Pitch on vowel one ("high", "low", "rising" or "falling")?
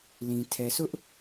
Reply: low